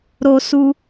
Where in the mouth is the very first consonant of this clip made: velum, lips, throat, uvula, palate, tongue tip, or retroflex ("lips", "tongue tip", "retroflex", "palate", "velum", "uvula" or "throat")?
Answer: tongue tip